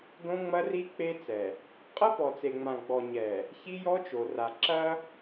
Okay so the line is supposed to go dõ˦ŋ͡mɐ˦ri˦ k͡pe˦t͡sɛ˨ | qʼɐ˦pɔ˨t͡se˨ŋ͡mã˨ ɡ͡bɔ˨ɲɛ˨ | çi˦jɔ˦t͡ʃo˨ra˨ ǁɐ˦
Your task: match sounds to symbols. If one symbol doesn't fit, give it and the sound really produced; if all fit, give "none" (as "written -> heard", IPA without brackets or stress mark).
none